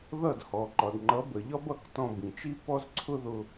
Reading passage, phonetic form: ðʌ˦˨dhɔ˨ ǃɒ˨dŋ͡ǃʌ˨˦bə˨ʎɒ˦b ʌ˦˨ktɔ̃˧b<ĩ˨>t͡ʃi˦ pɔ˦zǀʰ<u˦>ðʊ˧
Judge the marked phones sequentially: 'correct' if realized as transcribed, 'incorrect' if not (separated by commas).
correct, incorrect